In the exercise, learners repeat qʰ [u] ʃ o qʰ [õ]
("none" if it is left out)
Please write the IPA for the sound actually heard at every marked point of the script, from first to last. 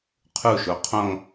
u, õ

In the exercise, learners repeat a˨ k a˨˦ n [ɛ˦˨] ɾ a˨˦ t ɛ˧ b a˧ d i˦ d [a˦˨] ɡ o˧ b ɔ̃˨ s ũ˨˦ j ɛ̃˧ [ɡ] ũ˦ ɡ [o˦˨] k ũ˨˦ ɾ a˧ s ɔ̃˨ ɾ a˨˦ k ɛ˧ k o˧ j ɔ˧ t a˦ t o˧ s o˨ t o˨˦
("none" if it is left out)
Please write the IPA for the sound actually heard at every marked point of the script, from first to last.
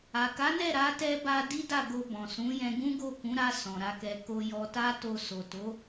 ɛ˦˨, a˦˨, ɡ, o˦˨

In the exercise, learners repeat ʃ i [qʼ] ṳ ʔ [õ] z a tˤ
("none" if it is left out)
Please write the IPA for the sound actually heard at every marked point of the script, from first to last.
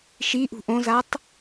ʔ, õ

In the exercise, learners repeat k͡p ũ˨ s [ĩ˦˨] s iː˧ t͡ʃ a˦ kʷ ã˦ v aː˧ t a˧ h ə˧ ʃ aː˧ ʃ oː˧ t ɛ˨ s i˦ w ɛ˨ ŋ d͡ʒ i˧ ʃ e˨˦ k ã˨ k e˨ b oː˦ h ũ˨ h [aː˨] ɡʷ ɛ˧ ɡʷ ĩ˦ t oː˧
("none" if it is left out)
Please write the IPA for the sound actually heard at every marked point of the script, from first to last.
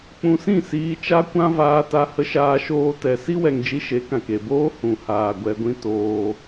ĩ˦˨, aː˨

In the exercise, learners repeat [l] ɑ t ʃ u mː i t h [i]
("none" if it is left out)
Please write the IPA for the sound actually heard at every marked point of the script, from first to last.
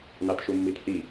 n, i

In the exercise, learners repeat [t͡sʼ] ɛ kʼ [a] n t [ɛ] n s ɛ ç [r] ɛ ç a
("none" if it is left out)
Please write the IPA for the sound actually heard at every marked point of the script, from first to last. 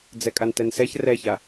d͡z, a, ɛ, r

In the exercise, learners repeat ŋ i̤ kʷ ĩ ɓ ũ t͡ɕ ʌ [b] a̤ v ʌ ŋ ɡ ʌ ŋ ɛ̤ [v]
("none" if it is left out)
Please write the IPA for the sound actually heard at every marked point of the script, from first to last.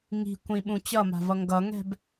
m, b

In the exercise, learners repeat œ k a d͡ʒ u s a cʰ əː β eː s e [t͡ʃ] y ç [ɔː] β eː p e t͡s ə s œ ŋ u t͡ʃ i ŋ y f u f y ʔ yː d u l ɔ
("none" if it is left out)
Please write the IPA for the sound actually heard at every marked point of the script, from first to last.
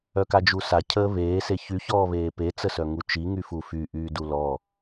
ç, ɔː

